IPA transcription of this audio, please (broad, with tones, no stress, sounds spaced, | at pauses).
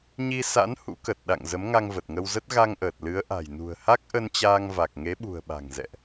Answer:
ɲ i˧ s a̰˧˥ n h ṵ˧˥ k ə˨˩ t̚ ɗ a̰˧˨ ŋ z ə˨˦ m ŋ a˧ ŋ v ə˨˩ t̚ ŋ ə˧ w z ə˦˥ t̚ ɣ a˧ ŋ ʔ əː˨˩ t̚ l ɨ˨˦ ə̯ ʔ a̤˨˩ j n ṳ˨˩ ə̯ h a˦˥ k̚ ʔ ə˧ n t͡ɕ aː˧ ŋ v a˨˩ k̚ ŋ e˨˦ ɓ ṳ˨˩ ə̯ ɓ a̤˨˩ ŋ z ɛ̰˧˨ ʔ